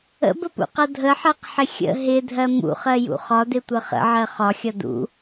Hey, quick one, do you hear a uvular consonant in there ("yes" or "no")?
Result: yes